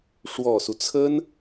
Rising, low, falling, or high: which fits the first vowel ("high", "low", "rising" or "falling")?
low